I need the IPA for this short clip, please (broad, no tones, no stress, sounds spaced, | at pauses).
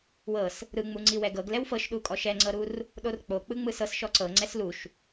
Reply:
w ɤ s | ɾ ɯ ŋ͡m u ŋ͡ǀ i w ɛ ɡ ɤ ɡ l ɛ w f ɤ ʃ ɗ u kʼ ɔ ʃ ɛ ŋ͡ǀ ɤ ɾ u r | ɗ o r k͡p o k͡p ɯ ŋ͡m ɯ s ɤ s ʃ ɔ ǀ ɤ ŋ͡ǀ ɛ s l u ʃ